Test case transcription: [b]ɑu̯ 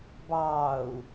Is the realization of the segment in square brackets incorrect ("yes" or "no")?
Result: no